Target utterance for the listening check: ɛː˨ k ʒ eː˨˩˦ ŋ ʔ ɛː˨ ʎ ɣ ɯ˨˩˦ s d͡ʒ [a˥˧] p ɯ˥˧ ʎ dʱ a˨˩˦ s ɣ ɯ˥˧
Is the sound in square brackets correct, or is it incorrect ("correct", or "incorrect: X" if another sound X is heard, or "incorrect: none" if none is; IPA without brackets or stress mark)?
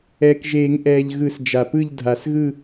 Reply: incorrect: a˨